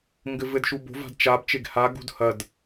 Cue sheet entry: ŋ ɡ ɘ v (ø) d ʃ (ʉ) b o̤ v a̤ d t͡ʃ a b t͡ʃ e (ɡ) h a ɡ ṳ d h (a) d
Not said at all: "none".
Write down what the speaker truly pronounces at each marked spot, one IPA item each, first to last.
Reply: ɘ, u, ɡ, ɐ

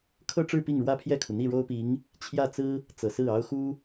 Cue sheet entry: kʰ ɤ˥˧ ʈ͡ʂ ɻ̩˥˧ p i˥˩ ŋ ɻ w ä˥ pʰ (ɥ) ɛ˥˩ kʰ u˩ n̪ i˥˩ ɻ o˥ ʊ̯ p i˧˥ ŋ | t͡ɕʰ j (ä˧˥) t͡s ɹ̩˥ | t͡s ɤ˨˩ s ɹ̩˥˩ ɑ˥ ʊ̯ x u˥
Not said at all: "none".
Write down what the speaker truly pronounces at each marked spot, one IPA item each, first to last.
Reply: j, ä˥˩

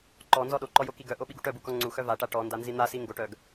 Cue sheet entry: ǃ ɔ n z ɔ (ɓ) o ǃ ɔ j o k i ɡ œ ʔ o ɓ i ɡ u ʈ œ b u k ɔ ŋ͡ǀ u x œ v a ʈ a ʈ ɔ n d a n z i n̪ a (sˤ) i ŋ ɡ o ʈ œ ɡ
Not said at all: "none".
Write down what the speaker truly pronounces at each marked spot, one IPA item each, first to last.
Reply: ɗ, s

